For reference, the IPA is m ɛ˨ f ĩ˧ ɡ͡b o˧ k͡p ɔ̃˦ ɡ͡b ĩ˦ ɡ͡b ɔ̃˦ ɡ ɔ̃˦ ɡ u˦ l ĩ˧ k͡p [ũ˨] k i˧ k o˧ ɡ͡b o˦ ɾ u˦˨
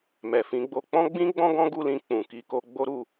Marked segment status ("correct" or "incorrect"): correct